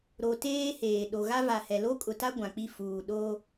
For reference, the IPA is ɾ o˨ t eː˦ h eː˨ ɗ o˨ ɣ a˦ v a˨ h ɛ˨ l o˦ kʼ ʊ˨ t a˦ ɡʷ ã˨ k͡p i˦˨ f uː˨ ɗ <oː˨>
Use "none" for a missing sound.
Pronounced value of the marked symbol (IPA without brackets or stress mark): oː˦